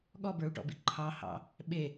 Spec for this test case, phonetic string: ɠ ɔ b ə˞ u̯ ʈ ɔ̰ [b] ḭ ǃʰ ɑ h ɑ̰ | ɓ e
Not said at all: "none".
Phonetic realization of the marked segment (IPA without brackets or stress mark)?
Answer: b